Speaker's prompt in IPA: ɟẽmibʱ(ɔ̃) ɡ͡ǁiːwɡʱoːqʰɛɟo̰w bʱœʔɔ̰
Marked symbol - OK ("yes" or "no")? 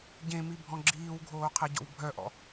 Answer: yes